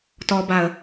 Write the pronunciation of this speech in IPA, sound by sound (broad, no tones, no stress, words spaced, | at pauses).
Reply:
tɔbaə̯